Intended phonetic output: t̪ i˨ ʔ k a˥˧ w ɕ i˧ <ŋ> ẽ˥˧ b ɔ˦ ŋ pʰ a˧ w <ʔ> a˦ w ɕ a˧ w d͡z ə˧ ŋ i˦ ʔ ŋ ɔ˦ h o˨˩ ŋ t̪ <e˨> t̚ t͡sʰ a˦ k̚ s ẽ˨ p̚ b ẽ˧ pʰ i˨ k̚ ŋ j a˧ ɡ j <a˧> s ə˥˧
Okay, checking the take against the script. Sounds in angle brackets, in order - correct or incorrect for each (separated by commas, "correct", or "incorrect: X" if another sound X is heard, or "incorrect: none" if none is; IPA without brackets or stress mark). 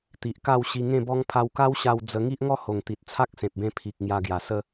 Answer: correct, incorrect: k, incorrect: i˨, incorrect: a˨˩